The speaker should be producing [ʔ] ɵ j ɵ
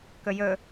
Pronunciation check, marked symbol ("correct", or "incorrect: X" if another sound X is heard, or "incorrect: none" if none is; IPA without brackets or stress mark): incorrect: k